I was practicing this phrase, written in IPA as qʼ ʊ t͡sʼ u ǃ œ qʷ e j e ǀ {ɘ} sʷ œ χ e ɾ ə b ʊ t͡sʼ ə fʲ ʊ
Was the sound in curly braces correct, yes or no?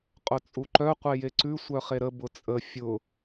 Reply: no